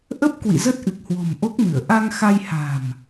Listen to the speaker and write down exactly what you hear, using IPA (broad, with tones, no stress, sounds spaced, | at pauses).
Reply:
ʔ ə˦˥ p̚ k w ḭ˧˨ z ə˦˥ t̚ ʔ ɨ˨˩ k̚ h w o̤˨˩ m ʔ o˦˥ k̚ m ɨ˧˩ ə̯ ʔ a˧ ŋ x a˧ j h a̤˨˩ m